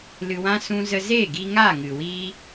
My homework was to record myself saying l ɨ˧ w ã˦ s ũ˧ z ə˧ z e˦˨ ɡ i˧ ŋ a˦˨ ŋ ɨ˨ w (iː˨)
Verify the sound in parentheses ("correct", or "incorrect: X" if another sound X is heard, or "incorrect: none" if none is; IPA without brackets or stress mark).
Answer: incorrect: iː˦